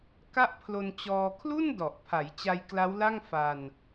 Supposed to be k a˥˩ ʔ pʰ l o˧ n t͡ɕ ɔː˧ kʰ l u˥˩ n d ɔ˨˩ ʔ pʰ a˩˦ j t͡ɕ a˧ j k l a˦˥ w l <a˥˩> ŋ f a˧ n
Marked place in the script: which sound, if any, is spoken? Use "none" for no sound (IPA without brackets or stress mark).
a˥˩